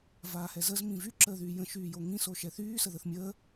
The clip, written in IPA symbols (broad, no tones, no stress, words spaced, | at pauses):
vaːhɛzəz mĩvy ǁəːðyːjə̃ ʃyːjoŋĩ soʃɛθyː səðəθmʲəː